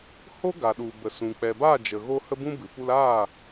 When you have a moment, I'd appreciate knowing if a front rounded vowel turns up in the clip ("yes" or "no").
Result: no